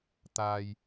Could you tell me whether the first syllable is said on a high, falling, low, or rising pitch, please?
low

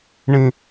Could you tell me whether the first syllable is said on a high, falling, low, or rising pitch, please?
high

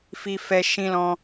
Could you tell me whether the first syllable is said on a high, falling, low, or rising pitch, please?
high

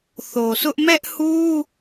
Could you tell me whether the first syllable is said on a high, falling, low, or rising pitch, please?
low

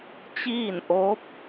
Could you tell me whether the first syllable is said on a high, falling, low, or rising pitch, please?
falling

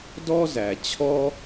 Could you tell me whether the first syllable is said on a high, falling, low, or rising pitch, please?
high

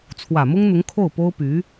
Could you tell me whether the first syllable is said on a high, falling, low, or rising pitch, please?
low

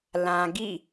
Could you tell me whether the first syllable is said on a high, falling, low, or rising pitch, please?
low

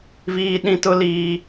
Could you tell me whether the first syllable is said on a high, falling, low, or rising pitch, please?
high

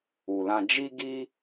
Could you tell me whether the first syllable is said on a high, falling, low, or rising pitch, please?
low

